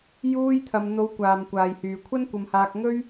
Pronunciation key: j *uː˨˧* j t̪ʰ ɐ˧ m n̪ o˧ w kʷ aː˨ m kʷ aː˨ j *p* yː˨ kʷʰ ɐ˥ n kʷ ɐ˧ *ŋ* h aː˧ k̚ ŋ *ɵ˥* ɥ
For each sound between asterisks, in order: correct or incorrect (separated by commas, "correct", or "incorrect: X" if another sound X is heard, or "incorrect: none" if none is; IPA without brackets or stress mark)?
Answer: incorrect: uː˥, incorrect: h, incorrect: m, correct